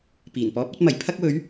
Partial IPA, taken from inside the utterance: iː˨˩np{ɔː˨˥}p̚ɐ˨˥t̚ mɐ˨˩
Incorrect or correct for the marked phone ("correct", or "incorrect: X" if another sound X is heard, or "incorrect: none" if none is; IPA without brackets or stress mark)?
correct